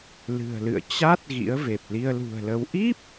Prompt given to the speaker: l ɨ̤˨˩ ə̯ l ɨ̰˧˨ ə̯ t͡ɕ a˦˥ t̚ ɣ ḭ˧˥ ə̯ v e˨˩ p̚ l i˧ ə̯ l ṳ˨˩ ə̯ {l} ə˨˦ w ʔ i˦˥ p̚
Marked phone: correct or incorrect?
correct